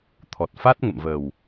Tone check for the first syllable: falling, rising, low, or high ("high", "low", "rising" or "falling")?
low